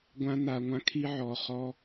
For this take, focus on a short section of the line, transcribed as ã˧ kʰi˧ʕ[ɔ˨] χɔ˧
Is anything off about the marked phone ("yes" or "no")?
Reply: no